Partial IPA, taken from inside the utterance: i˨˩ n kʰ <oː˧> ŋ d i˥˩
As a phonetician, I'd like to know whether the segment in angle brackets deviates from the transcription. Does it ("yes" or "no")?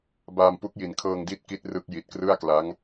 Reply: yes